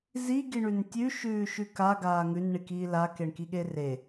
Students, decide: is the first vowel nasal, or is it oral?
oral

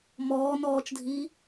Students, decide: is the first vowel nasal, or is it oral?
oral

